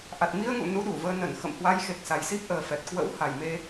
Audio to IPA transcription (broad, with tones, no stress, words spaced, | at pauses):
ʔa˨˩t̚mi˧ə̯ŋṵ˧˨ nu˨˦ɗu˧˩vəː˧nə˧˩n xə̰˧˨mhwa˨˦j xe˨˩k̚sa˨˩jsi˦˥p̚ ʔəː˨˩fɛ˨˩t̚ kwə̰˧˥wha˨˩jme˧